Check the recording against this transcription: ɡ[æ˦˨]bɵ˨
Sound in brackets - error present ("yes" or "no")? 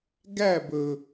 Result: no